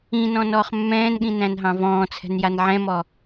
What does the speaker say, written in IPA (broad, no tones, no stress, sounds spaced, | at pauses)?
ĩ n ɔ̃ n ɔː χ mː ɛ̃ː n ɠ ĩ n æ̃ n ɦ ɑ̃ v ɔ̃ː t͡sʰ ɛ̤ n j a n ʕ ɛ̃ m ɔ